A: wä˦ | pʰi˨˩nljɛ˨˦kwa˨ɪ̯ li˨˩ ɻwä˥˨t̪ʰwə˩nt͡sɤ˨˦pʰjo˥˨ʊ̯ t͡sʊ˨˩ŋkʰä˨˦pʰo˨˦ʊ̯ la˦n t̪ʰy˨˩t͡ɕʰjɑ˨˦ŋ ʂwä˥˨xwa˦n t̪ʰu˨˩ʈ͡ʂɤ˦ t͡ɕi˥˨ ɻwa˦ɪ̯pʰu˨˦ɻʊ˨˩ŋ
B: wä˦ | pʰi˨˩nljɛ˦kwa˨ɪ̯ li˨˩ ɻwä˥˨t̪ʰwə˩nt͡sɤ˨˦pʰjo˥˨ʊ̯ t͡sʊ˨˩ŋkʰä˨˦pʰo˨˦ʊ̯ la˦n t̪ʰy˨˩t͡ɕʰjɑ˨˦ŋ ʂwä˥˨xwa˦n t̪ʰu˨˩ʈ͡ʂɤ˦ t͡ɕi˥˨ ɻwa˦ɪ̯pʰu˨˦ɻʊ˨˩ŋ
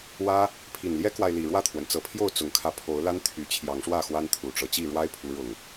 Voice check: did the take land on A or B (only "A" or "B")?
B